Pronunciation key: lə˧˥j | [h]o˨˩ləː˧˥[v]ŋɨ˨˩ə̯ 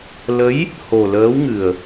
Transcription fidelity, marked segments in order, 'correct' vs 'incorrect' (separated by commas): correct, incorrect